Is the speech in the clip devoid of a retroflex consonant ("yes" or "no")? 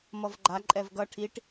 no